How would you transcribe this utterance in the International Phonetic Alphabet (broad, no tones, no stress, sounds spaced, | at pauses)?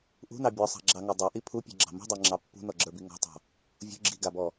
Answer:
ʔ ṳ n ɑ bʲ ɔ sˤ ɑ̤ ɡ͡ǁ ɑ ŋ a dˤ ɑ ʔ i pʰ u pʲ ɔ̤ ɡ͡ǁ ɑ̤ m ṳ dˤ ə˞ ŋ͡ǁ ɑ pː ṳ n ɔ ɡ͡ǁ ə˞ b i ŋ ɔ̤ tˤ ɑ̤ | vʲ ṳ ɡ͡ǁ i ɡ a b ɔ